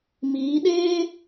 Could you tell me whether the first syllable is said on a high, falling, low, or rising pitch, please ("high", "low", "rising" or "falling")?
rising